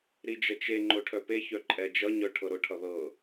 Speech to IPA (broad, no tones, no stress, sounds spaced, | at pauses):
ɾ i d͡ʒ ʌ t͡ʃ e ŋ͡ǃ ʊ ʈʰ œ p e ç œ ǃʼ ɛ d͡ʒ ʌ ɲ œ ʈʰ ɤ ɾ ʊ ʈʰ ʌ ð ɤ